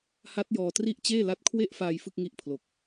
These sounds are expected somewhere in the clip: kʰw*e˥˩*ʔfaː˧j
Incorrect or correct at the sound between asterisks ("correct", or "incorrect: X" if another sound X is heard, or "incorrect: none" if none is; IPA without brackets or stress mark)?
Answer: correct